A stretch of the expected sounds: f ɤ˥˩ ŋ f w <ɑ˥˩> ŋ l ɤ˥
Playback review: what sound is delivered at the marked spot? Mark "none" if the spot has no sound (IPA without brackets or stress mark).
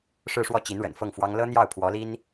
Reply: ɑ˥